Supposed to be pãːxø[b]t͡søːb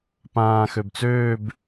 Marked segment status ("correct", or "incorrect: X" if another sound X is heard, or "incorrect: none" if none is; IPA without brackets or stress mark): correct